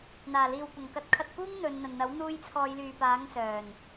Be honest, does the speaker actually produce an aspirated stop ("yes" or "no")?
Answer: yes